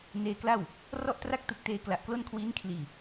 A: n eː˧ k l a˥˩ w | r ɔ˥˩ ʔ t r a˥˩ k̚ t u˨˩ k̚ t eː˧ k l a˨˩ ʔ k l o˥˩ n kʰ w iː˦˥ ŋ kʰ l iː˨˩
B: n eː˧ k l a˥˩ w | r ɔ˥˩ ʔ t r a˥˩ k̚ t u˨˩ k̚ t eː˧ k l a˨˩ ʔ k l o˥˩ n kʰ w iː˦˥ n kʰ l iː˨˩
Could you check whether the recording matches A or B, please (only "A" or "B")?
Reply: B